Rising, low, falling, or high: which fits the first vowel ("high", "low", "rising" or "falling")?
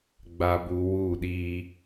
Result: low